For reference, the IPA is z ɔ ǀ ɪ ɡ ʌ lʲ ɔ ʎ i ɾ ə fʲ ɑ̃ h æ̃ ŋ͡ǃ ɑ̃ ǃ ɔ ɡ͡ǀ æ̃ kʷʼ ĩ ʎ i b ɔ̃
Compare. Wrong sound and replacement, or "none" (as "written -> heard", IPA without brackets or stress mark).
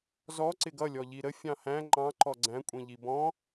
none